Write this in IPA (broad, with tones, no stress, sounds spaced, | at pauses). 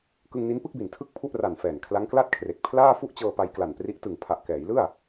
k ɯ˧ ŋ n i˦˥ n p ɯ˥˩ k̚ b i˨˩ n tʰ ɯ˥˩ k̚ pʰ u˥˩ ʔ r a˨˩ n f ɛː˨˩ n kʰ l a˦˥ ŋ k l a˥˩ t̚ kʰ r e˨˩ k̚ pʰ l aː˥˩ f u˥˩ ʔ t͡ɕ ɤː˧ p a˧ j k l a˨˩ n p r i˦˥ ʔ t ɯ˨˩ ŋ pʰ a˨˩ ʔ k ɛː˩˦ j l ɯ˥˩ a̯